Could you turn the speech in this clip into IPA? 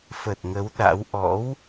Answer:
fə˨˩t̚ŋə˨˦w ɗa̰˧˥w ʔɔ̰˧˥w

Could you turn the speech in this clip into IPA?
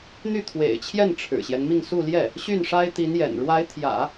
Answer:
n̪y˥˩t̪ʰwḛ˨˩ɪ̯t͡ɕʰjɛ˥˩n ʈ͡ʂʰɻ̩˨˩ɕjɛ˦nmi˥˧ŋ su˥˧ljɛ˥˩ | ɕy˥˩nʂa˥ɪ̯t̪i˧˥njɛ̰˨˩n ɻwa˧˥ɪ̯t̪ʰjä̰˨˩˦

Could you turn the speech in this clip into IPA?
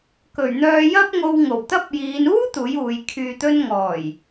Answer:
kɵ˨˩ɥn̪œː˧jɐ˥p̚ŋo˧w ŋo˨˩wt̪ɐ˥p̚jiː˨˧n uː˥ t̪uː˨˥juː˨˧j kʰyː˨t̪ɵ˧n ŋɔː˨˩j

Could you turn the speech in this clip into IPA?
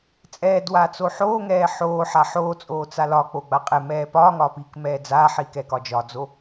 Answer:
t͡sʼɛːdwaː t͡soħoːŋɛː ħoːħaħ oːt͡sʼoː t͡salɒk͡po ɡ͡baqʼɛmɛː pɒːŋɒː piːkmɛːd͡zaːħiːk ɛkɒd͡ʒɒd͡zo

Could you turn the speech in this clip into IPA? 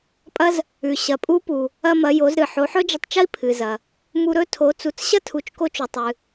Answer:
pʼɐ˥z | ʉ˩ ɕɐ˩pʼu˧˥ pu˩ | ɐ˧mɐ˩˧ jo˩˧zɾɨ˩ ħo˩˧ħɵ˥d͡ʒɐ˧tˤt͡ʃɐ˥i̯ pʰɨ˩zɐ˩ | mu˧ɾɵ˥ tʰo˩˧t͡su˩˧t͡s ɕɐ˥tʰu˩˧t͡ʃko˧t͡ʃu˩ tˤɨ˩

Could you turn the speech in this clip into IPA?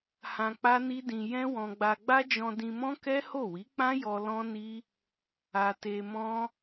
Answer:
hã˧ k͡pa˦ni˦dĩ˧ jɛ̃˦wɔ̃˧ɡ͡ba˧ ɡ͡ba˦d͡ʒɔ̃˧ dĩ˧mɔ̃˦ kɛ˦ho˦˨ wi˨˦k͡pã˦ jɔ˧ lɔ̃˦ni˦ | a˧te˧mɔ̃˦

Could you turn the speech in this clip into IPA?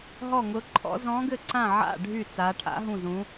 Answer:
ɦɔ˥˨ŋʊ˧˥ǃʰɔ̰˧˥ zɔ̃˧˥ɡɘ˥˨ǀã˥˨ ʕa̰˥˨ ɖʱy˥˨ t͡sa˧˥ ʈʰa̰˧˥ɦũ˥˨zũ˧˥

